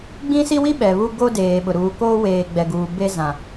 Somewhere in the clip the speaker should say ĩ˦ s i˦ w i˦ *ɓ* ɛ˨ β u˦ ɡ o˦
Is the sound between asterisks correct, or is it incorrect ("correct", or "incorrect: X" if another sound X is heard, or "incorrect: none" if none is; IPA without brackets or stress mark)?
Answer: correct